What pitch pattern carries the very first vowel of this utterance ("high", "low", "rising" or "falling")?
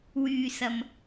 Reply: low